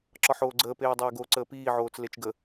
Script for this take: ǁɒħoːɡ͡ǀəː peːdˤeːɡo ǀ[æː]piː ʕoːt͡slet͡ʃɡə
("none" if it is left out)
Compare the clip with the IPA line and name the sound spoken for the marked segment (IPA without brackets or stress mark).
əː